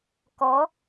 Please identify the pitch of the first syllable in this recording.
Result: rising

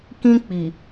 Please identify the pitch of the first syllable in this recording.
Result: high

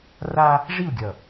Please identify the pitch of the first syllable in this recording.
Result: high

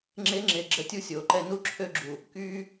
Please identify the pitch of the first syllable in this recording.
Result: rising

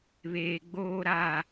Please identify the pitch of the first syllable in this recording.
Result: low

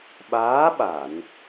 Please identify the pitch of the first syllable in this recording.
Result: rising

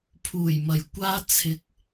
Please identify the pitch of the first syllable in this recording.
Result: low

